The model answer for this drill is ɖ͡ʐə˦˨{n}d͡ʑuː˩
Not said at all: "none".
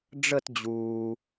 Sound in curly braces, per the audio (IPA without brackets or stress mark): t